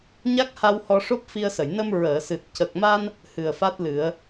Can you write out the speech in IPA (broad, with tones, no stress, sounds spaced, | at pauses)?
ɲ a˦˥ k̚ h a˧ w h ɔ˧ ʂ o˦˥ p̚ f i˧ ə̯ s ə˨˩˨ j n ə˧ m ɹ əː˨˩˨ s ɨ˨˩ t̚ c ə˨˩ k̚ m a˧ n | h ɨ˨˩ ə̯ f a˦˥ t̚ l ɨ˨˩˦ ə̯